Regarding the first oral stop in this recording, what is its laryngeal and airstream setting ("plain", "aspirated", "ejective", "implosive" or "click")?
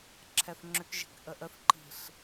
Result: click